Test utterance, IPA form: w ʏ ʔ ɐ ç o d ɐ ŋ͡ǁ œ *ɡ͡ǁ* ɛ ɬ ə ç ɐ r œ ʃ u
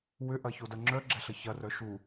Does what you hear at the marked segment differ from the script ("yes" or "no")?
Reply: no